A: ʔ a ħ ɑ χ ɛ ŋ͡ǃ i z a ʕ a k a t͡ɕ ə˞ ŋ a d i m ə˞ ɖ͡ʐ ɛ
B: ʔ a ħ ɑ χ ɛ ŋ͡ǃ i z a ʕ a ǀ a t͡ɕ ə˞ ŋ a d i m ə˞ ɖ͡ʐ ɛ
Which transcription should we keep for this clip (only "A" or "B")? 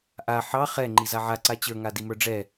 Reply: B